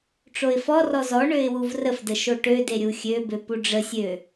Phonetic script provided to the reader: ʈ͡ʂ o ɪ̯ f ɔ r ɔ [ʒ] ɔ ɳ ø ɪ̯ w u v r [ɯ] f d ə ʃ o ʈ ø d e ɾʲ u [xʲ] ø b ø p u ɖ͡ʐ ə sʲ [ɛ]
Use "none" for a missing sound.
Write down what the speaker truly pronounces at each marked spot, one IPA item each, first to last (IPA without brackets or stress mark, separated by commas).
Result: z, ə, xʲ, ø